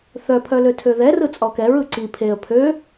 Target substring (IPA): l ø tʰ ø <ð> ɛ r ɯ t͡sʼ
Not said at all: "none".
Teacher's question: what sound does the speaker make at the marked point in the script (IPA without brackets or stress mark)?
ð